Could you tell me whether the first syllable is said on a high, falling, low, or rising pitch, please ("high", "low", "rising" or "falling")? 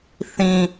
high